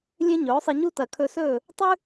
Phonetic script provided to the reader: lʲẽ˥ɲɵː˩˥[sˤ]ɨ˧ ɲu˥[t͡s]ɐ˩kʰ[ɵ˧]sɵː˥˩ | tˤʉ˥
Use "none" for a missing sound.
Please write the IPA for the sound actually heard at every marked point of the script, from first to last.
sˤ, t, ɵ˧

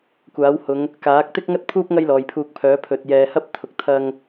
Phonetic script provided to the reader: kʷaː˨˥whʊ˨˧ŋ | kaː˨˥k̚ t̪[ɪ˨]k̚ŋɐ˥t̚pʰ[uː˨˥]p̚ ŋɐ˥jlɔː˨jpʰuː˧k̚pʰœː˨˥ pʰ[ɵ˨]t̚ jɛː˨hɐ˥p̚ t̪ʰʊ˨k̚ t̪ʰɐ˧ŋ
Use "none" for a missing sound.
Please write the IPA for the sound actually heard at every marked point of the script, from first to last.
ɪ˥, uː˥, ɵ˨

